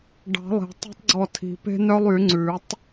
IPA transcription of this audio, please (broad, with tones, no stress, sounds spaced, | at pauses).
ɖ ɑ̤˨˩˦ lˠ e̤˨˩˦ tˤ e̤˦ tˤ ɡ͡ǀ ɔ˧˩ tʰ i̤˨˩˦ p e̤˦ n œ˦ lˠ y˨˩˦ ŋ͡ǀ ʉ˨˩˦ tˤ